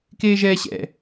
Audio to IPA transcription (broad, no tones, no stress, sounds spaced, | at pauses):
k eː ʒ ɛː ɕ ɛ̰